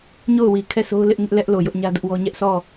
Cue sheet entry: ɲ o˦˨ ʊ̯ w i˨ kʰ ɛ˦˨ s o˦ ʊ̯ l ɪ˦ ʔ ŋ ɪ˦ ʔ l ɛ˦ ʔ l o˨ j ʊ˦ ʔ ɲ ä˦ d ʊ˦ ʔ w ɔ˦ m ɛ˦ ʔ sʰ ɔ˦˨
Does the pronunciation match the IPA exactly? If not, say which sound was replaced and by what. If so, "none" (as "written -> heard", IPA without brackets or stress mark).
m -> ɲ